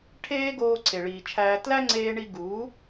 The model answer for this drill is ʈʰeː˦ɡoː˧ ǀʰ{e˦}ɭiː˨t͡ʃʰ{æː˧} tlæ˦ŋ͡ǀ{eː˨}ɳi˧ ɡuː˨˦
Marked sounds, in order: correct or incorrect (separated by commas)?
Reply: incorrect, correct, incorrect